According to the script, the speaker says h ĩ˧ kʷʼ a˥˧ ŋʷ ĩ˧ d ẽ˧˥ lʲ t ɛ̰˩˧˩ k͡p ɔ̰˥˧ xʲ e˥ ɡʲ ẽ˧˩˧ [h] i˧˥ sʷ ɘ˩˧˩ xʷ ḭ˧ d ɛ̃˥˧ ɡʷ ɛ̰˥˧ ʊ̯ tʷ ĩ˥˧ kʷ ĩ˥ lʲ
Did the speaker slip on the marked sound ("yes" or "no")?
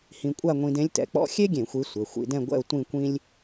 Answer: yes